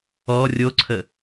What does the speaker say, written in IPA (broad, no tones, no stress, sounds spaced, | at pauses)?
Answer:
ɔ rʲ o ǀʰ ə